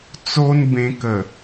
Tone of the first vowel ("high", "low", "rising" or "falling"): high